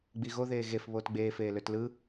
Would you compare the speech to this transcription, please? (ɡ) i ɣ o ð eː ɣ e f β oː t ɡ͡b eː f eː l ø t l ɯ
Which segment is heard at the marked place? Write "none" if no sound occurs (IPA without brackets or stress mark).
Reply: ɡ͡b